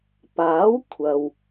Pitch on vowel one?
rising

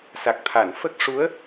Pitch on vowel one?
low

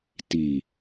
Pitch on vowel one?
low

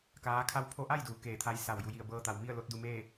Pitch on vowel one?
rising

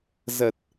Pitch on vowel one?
low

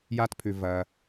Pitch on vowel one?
high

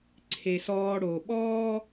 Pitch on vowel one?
low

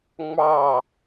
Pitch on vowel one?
falling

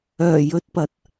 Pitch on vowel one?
low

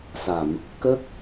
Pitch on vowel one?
low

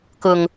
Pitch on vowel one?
low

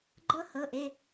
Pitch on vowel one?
high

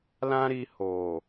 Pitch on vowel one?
high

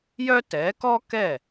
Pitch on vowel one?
high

